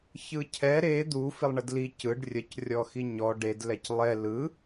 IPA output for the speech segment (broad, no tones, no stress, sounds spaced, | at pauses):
ç ɯ cʰ ɛ ɾ e d̪ u f i lˠ ɳ ə d l i c ɯ ɖ rʲ ə c rʲ ɔ x i ɲ ɔ ɖ e d l ɛ c lˠ ɛ l ɯ